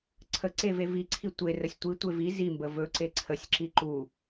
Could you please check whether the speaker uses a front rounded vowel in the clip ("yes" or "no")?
no